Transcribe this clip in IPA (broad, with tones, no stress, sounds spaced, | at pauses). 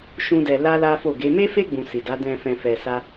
ʃ ũ˦ d ɛ˧ l a˦ l a˦ f o˦˨ ɡ e˨˦ m e˦ f e˦ ɡ͡b ũ˧ s i˨ d a˨˦ d ɛ̃˧ f ɛ̃˧ f ɛ˧ s a˦